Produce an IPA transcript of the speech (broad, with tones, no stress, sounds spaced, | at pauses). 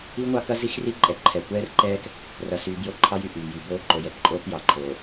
i˦ ŋʷ ɑ˦ k ɐ˦ z i˦ x r i˦ ǃʼ ɛ˨ ǃʰ ɛ˨ kʷ ɛː˦ r ǃ ɛː˦ k | r ɐ˨ s yː˨ b j o˦ ǃʰ ɑ˦ j y˨ ʔ yː˨ j y˨ b oː˦ ǃ o˨ j ɛ˦ k ǃʼ oː˦ k j ɑ˨ ǃʰ oː˨